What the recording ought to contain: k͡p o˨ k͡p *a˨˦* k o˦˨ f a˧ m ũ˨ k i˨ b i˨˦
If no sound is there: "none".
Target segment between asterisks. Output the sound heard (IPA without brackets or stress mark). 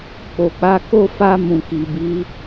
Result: a˨˦